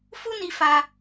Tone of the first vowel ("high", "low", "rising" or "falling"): high